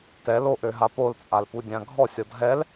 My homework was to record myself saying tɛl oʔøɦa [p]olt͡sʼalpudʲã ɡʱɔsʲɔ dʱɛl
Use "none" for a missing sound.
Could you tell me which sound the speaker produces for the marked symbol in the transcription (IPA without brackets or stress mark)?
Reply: p